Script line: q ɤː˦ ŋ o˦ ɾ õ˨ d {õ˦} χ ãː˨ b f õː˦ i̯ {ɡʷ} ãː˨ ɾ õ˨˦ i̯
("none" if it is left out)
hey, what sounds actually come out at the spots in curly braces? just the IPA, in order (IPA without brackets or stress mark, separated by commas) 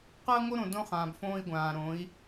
õ˦, ɡʷ